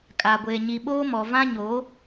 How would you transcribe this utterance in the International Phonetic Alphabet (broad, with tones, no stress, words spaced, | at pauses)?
kʼa˨ɡʷe˨ ɲi˨ɓoː˦mɔ˨ vã˦ɲoː˨˦